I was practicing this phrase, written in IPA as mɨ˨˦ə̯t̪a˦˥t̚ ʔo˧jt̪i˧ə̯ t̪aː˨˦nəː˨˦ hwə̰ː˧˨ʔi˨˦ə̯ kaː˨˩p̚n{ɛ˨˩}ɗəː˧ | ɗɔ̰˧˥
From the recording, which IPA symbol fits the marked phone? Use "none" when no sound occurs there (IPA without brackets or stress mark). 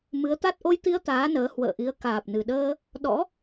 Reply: ɨ˨˩